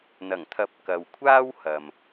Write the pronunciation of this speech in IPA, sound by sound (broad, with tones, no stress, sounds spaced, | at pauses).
n̪ ɐ˨˩ ŋ t̪ʰ ɐ˨˥ p̚ k ɐ˨ w kʷʰ aː˥ w h ɐ˨ m